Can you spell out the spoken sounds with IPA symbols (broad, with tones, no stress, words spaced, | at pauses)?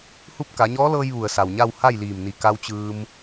hu˥˨p̚ ka˩˧ɲɔː˧˥lɤː˧j ʋu˩ə̯sa˩wɲa˥˨w ha˥˨jliː˧˩mni˧˩ ka˧wt͡ɕɯː˧m